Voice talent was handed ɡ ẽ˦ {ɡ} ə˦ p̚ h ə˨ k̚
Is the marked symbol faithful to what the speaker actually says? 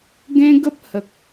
yes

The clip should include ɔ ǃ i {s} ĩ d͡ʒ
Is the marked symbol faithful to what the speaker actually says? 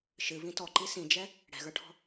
yes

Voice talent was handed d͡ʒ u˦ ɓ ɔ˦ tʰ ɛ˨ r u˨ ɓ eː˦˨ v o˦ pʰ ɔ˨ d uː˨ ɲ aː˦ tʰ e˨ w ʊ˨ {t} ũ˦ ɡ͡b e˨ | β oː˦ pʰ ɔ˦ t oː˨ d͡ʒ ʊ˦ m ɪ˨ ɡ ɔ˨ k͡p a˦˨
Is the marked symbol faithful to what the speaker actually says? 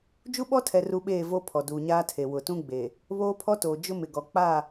yes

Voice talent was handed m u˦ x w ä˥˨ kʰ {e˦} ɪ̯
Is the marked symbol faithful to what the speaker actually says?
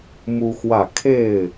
no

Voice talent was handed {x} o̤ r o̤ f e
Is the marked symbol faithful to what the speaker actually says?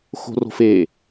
yes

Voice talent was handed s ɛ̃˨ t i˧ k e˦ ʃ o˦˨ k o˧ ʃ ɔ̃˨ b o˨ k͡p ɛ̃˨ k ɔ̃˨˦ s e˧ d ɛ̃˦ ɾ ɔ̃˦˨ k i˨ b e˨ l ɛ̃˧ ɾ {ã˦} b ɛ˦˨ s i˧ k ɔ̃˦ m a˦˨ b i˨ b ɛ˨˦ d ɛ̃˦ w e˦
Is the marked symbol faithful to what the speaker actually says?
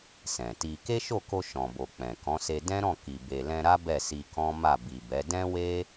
no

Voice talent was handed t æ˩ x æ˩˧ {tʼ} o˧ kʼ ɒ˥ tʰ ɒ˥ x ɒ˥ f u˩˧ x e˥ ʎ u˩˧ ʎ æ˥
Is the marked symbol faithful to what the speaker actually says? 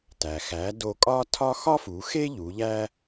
no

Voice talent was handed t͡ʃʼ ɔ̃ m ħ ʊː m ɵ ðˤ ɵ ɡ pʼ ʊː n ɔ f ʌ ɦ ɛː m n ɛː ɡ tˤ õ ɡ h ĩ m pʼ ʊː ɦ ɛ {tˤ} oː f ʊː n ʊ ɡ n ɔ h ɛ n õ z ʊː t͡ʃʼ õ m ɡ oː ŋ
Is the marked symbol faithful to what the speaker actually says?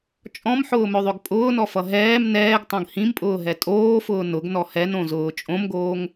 no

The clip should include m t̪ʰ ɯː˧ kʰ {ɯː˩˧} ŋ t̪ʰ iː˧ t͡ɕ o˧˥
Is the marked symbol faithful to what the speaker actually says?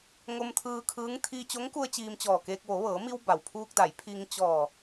no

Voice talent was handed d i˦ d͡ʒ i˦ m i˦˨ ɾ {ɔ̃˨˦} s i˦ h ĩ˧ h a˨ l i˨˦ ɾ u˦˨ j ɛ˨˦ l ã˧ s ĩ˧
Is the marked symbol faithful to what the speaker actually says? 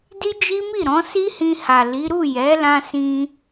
yes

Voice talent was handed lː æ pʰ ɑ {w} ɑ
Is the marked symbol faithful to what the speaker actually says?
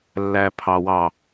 yes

